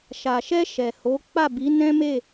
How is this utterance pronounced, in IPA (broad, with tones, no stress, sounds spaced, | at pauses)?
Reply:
ʃ a˨ ʃ ɛ˧ ʃ ɛ˨ h o˨˦ k͡p a˦˨ b i˨˦ n ɛ̃˦ m e˦˨